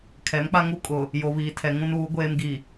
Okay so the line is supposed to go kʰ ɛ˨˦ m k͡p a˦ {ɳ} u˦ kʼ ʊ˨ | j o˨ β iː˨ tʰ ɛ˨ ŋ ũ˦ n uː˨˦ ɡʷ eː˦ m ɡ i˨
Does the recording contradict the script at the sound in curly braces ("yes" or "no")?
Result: yes